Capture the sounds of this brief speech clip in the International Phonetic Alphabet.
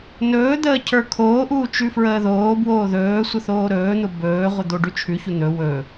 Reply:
n ɵː d̪ əː cʰ ə˞ kʰ oː ʔ uː t͡ʃ ʉ f ɹ əː ð oː b w oː ð ɵː sʷ ə θ oː ɾ ɵː n̪ ʊ b ɵː ʁʷ ə d̪ o ɖ ʉ t͡ʃʰ ʉ ç u n̪ ɵ w ɵ

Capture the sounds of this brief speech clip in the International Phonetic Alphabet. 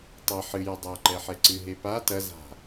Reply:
tˤ ɐ ħ ɨ j ɐ dˤ a ǃ ɛ ħ ɛ ǀ ɨ ɦ e p a t ɐ z a̤

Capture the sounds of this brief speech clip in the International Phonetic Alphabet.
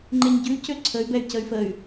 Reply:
ŋ͡ǃ e ɲ ɟ ʉ c ø ǀʰ ə y̯ b ɛ y̯ c ə y̯ f ə y̯

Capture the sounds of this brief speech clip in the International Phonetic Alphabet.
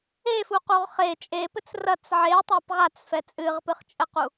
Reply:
e f u q u ʁ χ e t͡ʃʼ e p ɘ t͡s r ɐ t͡s ʕ e tˤ a p ʁ a t͡s f ɛ t͡sʼ ɨ ʁ p ɨ χ t͡ʃʼ ɘ q u

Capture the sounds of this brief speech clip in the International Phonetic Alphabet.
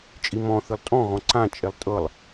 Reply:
t͡ʃʼ i m ɔ̃ θ ɨ lˠ tʼ ɔ̃ ɣ ɔ̃ ǀ ã t͡ʃʼ e lˠ tʼ ɤ lˠ

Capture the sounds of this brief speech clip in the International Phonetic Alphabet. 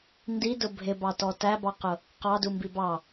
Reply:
n d i d ʊ bʱ ɪ b ɑ t ɔ t æ b ɑ q ʊ | q ɑ d u m b i b ɑ

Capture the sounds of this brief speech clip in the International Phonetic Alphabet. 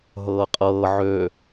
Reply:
ɦ ɤː qʼ ɤː ʕ ø

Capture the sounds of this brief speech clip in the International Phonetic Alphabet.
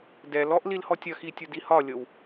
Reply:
d ɛ l ɔ ʔ l i l h ɔ tʲ ɐ x i tʲ ʊ d i h ɒ lʲ ɤ w

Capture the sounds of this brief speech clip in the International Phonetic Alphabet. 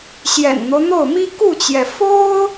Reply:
ɕ j ɛ̰˨˩ n n̪ o˦ ʊ̯ n̪ o˥˩ ʊ̯ m i˥ k u˥˩ t͡ɕ j ɛ˩ f o˥ ʊ̯

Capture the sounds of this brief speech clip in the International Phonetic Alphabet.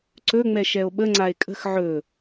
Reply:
ǀ ɵ ŋ͡m ɛ ʃ ɛ o̯ ɓ ə ŋ͡ǀ a e̯ kʼ ə̤ x ʕ ɵ

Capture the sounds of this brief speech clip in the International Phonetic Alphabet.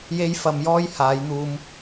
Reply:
j e˥ j f ɐ˧ m j ɔː˥ j h aː˨˧ j n̪ uː˧ m

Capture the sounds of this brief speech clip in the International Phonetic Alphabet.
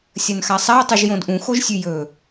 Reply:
sʲ ɐ n x a sˤ a ɐ̯ tˤ ʉ ʒ j õ d ʔ ũ x o ʒ sʲ ʉ j ɵ

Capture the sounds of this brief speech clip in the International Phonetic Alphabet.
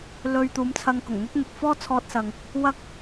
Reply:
l ɵ˧ ɥ t̪ uː˨˧ m t͡sʰ ɐ˧ ŋ k ʊ˨˩ ŋ n̪ ɵ˥ t̚ n̪ ʊ˨ k̚ f ɔː˥ t͡sʰ ɔː˧ t̚ s ɐ˨ ŋ | w ɐ˥ k̚

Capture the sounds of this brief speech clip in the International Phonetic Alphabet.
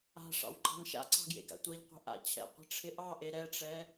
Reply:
a̤ ʂ ɑ̰ w ǃ ɑ̤ n ʃ a̰ ǀ ɑ̤ ɡ j ḛ ɡ a̰ tʷ ɛ ʎ qʷ e̤ ʔ a̰ t͡ɕʰ ɛ̰ qʷ ɛ̤ ʈ͡ʂʰ ɪ ʔ ɑ ʔ e ɾ ɛ ʈ͡ʂ ɛ

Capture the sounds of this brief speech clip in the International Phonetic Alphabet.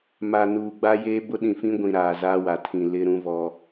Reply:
m a˨ n uː˨ ɡ͡b a˦ j eː˦ b ʊ˦ ɗ ĩ˨ f ĩ˦ ɡʷ ĩ˨ ɾ aː˨ z a˦ w a˨ tʰ ĩ˨ l ɪ˦ ɾ ũ˦ v ɔ˦

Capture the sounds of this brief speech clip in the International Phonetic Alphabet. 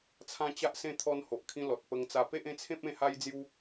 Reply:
t͡sʰ ã˦ t͡ɕ a˦ ʔ s ẽ˦ t̪ʰ ɔ˧ n h o˨ ʔ kʰ ĩ˧ l ɔ˨ t̚ p ə˧ ŋ t͡s a˧ p e˦ ʔ ẽ˥˧ t͡sʰ ẽ˦ p̚ ẽ˥˧ h a˦ j d͡z j u˦

